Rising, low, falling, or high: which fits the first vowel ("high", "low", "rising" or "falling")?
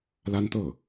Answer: high